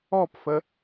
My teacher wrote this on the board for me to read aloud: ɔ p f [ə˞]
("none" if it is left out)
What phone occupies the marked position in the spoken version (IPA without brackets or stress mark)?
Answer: ə